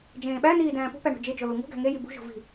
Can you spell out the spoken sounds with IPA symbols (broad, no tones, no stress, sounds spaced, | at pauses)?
d͡ʒ ẽː ɓ æ n iː d æ̃ː p ṳ p æ ɳ ṳ d͡ʒ e d͡ʒ o l u ŋ ṳ ɡ æ̤ ŋ e j i b ṳ ʒ o̤ v i̤